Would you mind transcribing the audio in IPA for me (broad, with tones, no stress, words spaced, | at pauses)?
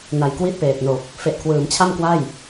na˨˩j kwiː˥˩t̚peː˨˩t̚no˨˩k̚ | fe˨˩ʔkʰwɯː˩˦mt͡ɕʰa˥˩m kwa˥˩j